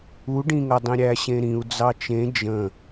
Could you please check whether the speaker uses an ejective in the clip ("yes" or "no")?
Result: no